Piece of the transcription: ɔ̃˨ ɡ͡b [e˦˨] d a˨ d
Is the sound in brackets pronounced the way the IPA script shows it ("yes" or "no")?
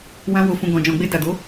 no